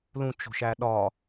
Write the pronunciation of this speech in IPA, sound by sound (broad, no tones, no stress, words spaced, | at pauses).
lũt͡ʃo̤ʃæ ɗɒ